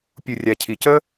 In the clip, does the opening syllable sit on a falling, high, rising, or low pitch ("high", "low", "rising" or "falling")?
low